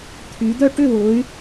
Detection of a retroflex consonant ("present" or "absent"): present